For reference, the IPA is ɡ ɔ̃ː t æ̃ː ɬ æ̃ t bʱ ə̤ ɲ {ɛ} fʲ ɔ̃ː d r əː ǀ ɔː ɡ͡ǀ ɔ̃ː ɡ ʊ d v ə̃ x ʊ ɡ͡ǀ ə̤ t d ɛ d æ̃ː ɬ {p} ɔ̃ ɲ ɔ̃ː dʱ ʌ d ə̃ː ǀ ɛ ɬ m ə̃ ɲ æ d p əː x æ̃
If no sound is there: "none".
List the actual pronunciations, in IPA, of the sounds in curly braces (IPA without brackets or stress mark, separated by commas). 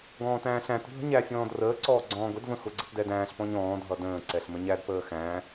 æ, p